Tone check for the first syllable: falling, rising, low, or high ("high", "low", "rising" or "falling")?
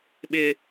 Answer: high